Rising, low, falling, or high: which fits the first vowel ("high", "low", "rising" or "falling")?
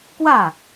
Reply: falling